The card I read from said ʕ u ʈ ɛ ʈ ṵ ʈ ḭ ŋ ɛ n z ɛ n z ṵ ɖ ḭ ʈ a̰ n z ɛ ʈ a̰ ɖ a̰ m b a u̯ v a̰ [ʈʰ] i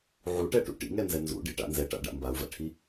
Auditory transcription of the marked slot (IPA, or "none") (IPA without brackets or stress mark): ʈʰ